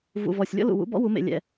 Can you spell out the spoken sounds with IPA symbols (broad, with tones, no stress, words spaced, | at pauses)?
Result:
vṵ˧˩vɔ˧˩sʲ lʲɔ̰˥lṵ˧˩wṵ˧˥bɔ̰˥ wu˩˥mḛ˧˩lʲɛ̰˧˩